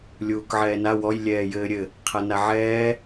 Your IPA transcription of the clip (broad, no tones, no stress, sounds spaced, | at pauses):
lʲ uː k ʕ ɛː n a w ɔ j lʲ ɛː j ɘː ɾʲ ɘ | qʰ a n a ʕ ɛː